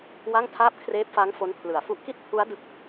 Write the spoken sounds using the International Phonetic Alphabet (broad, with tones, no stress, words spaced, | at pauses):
wa˥˩ŋtʰaː˥˩p̚ kʰreː˦˥p̚fa˦˥ŋ fo˦˥npʰlɯ˨˩a̯fu˥˩ʔ ki˥˩t̚pʰu˦˥a̯ dɯ˥˩k̚